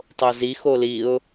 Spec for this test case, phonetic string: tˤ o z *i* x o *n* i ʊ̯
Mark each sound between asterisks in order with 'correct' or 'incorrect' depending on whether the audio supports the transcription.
correct, incorrect: l

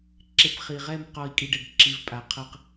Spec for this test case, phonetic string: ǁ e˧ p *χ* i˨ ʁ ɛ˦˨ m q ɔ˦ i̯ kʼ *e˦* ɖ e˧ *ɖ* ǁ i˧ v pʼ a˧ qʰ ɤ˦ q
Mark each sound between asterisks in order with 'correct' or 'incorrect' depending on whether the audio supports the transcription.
correct, incorrect: i˦, correct

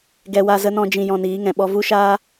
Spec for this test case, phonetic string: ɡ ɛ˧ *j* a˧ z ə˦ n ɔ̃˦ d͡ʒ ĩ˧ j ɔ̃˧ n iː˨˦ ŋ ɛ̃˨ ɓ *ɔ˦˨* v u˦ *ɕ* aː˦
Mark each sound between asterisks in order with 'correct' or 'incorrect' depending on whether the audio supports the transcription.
incorrect: w, incorrect: ɔ˦, incorrect: ʃ

